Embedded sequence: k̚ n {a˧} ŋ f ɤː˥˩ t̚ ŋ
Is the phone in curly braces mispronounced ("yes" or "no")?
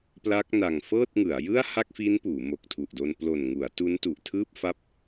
yes